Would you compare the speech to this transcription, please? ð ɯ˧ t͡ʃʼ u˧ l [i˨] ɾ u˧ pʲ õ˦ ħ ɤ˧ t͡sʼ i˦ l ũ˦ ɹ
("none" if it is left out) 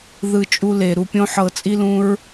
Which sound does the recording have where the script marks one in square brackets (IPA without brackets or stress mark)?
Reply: e˨